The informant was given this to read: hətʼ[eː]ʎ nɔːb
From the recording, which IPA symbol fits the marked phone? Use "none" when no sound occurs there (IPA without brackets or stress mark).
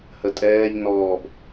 ɛː